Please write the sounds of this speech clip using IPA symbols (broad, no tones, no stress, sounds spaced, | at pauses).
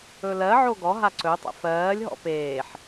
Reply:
ɵ l ɜ ʕ o ɡ ɔ ɦ a ǀ ɵ tˤ ə̰ f ɜː lʲ ɦ ɔ̰ p eː ħ